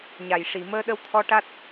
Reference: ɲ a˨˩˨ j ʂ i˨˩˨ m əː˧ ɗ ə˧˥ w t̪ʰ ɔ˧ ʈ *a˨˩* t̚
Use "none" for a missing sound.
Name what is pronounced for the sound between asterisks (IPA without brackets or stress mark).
a˦˥